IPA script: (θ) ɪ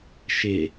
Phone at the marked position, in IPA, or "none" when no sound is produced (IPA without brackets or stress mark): ʃ